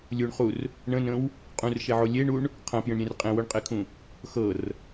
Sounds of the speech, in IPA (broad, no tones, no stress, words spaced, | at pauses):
lʲuɳχur | ɳə̃nə̃w | qʼũrʃeʕo lʲeɳuɳ | qʰɐ̃pjə̃ɳɾʲẽr qʼẽwoɳqʼekʰũ | xɤr